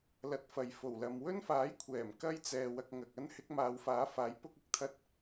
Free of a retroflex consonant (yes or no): yes